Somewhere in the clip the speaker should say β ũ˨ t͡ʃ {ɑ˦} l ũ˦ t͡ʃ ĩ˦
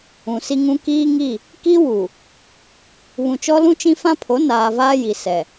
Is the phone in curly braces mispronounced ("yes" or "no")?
yes